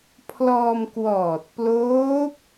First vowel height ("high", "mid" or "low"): mid